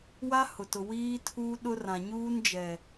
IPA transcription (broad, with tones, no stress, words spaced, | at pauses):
wa˦ hʊ˨ tʊ˨ wiː˦ tʰuː˦ɗʊ˦rã˨ ɲuː˦nd͡ʒɛ˨